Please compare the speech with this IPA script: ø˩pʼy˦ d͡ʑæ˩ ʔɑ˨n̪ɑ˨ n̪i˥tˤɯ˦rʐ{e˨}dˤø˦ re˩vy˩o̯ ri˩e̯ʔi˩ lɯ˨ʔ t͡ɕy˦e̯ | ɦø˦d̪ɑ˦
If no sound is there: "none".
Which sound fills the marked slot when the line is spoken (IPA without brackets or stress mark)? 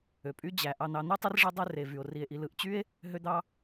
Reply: e˦